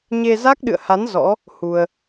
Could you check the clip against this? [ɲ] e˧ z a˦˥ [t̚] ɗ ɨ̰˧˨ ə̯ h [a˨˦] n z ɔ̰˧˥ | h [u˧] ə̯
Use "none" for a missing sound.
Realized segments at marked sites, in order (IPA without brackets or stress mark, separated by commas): ɲ, k̚, a˨˦, u˧